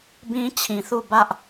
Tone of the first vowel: high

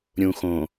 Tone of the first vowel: low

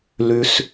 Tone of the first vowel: high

